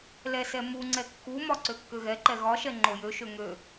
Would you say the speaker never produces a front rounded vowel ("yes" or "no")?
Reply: no